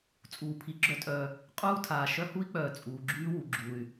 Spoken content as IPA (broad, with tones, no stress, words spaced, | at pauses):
t͡sʼuː˩pʰi˩ɡ͡ǁœ˥tʼœː˨ | qʼuː˥tʰaː˩ ʃœ˦hu˥i̯k͡pœː˩ t͡sʼuː˩ɡ͡ǁyː˥ wu˩ɡ͡ǁuː˩y̯